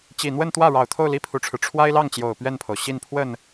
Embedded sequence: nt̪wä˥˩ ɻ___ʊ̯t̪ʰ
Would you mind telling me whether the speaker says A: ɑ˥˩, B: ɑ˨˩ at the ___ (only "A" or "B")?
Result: B